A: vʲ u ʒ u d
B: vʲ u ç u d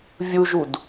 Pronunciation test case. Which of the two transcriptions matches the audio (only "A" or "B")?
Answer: A